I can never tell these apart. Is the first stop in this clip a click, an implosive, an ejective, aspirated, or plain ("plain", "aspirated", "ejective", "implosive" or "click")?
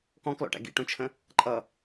plain